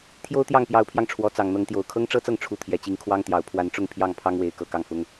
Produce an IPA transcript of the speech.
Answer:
t̪ʰ j o˥ ʊ̯ t̪ j ɑ˥˩ ŋ p j ɑ˧˥ ʊ̯ pʰ j ɑ˧ ŋ ʈ͡ʂʰ w ɔ˧˥ t͡s ɑ˨˩ ŋ n̪ ɤ˧˥ ŋ t̪ j o˨˩ ʊ̯ kʰ ɤ˥ ŋ ʈ͡ʂ ɤ˥ t͡s ɤ˥˩ ŋ ʈ͡ʂʰ u˧˥ t̪ʰ j ɛ˨˩ t͡ɕ i˧˥ ŋ kʰ w ɑ˥ ŋ t̪ j ɑ˨˩ ʊ̯ pʰ w a˧˥ n ʈ͡ʂ ʊ˥˧ ŋ pʰ j ɑ˥˩ ŋ pʰ ɑ˥ ŋ w e˧˥ ɪ̯ k ɤ˨˩ k ɑ˥˩ ŋ f ʊ˥ ŋ

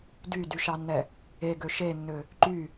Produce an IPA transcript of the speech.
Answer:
d y d y ʃ ɑ nː ɛ | e ɡ ø ʃ e nː ø | ǃ y

